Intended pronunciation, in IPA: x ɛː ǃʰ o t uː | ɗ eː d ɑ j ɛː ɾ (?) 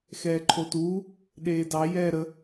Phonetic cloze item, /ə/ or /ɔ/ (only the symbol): ə